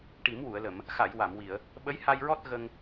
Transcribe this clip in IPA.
ʈi˨˩˦mwu˨˩˨ə̯lə˨˩˨m | xa˨˩˨j wa˨˩˨mwi˨˩˨ə̯ | ɓə˧˥j ha˧jɹɔ˦˥t̚ ɣə˧ŋ

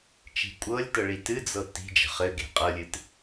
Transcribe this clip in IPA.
t͡ʃi̤kʷʼɤlʲtɤ ɭitɨd͡zɤ ti̤d͡ʒə̤ χɘɡe̤ qʼɤlʲɨt

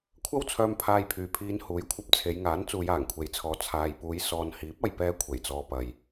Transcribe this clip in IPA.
kʷʰɐ˥wt͡sʰœː˧m pʰaː˧jpʰyː˨pʰiː˧n huː˨˥jkʷʰɐ˧p̚t͡sʰe˨˧jŋaː˨˥n t͡suː˨˧jaː˨˩ŋkʷʰe˨jt͡sʰɔː˨ t͡sʰaː˨jpuː˨˧j sɔː˨n hiː˨˥p̚ɐ˨jpɛː˧ kʷʰe˨˩jt͡sɔː˨ pɐ˨j

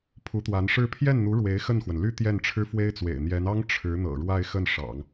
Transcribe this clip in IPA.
pʰu˧˥t̪wa˧˥nʂɻ̩˥˧ pʰjɛ˥˩nn̪u˧˥ ɻwe˧˥ɪ̯ xə˥˩nxwə˩n ly˥ t̪jɛ˥˩nʈ͡ʂʰɻ̩˥fwe˥ɪ̯t͡swḛ˨˩ɪ̯ n̪jɛ˧˥nɑ˥ŋ ʈ͡ʂʰɻ̩˧˥n̪ɤ̰˨˩ɻwa˥˧ɪ̯ xə˥˩nʂɑ̰˨˩˦ŋ

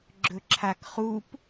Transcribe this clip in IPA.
ɡ͡ǁɵǁʰakχup

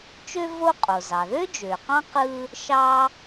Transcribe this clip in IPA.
t͡ʃø˥ vo˥ qʼo˩zɑ˩ðø˥ d͡ʒø˩qɑ̃˥ qɯ˥ | ʃɑ˥

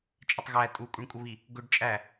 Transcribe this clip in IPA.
t͡ʃʼətˤɣæ tʼukʷʼiɳkʷʼəβi | ɡʊɖ t͡ʃʼæ

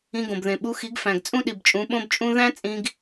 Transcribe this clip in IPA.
ĩ˧ɡõ˨bðẽ˨ ɓu˧xi˨˦ɡfæ̃˨ɡ t͡sʼũ˦ɗi˨bt͡ʃʼũ˨˦ ɓõ˦bt͡ʃʼũ˦ ðæ̃˦t͡sʼĩ˧ɡ

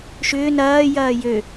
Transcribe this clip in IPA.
ʃʏː nɐː jɐːjø

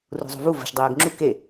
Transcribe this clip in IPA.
rṳzˤo̤vu və̤ʃ dˤejəɡŋ͡ǁu ke

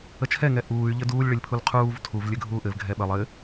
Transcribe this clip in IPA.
ət͡ʃʰɛ ŋɛʔuːy̯ ʎɘduːlʲ ɭɘlʲpʰulqʰuːv tʰuv lʲɘɡʱuːʔɘv ɡʱɛɓə lˠɘ

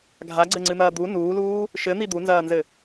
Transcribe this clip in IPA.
ɡʱaɡ͡ǀɘŋ͡ǀɨn̪ɐː d̪u nuːluː | ʃɘn̪i d̪unzɐːnzɘ

